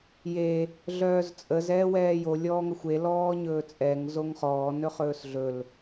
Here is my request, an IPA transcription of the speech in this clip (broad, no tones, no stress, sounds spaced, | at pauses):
j e | ɮ œː z t͡sʼ ə z ɛː w ɛː j o lʲ ɔː ŋ ə xʷ e l ɔː ɲ ɵː t͡sʼ ɛ ŋ z o ŋ χ ɔː n ɵ χ ɵː s ɮ ɵ l